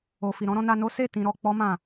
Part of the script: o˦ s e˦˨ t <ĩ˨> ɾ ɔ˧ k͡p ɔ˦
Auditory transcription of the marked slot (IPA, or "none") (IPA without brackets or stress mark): ĩ˧